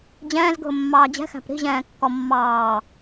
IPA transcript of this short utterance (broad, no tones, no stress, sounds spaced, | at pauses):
d͡ʑ ɛ̃ː z ɡʱ ʊ mː ɑː d͡ʑ ɛ̤ x æ̤ p ɾ i̤ ʑ ɛ̃ː kː ɔ mː ɑː